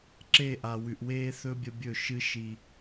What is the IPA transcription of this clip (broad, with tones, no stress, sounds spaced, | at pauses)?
ǁ e˦˨ ʔ a˨ w ʉ˨ ʔ w eː˦ θ ɵ˦ bʲ ɐ˦ bʲ ɵ˦˨ ʃ ɨ˦ ʃ i˦